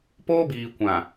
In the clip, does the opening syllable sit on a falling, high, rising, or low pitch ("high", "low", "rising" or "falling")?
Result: high